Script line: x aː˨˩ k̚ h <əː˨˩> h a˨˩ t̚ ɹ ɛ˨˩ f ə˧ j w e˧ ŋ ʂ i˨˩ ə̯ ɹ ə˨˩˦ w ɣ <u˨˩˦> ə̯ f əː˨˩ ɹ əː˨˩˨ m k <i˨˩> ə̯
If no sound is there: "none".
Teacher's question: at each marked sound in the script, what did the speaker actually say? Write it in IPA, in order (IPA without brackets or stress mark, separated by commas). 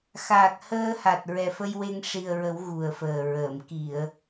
əː˧, u˨˩, i˨˩˨